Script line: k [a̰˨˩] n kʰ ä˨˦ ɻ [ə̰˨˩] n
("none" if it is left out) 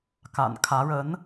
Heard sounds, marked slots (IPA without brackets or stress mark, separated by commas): a̰˨˩, ə˨˦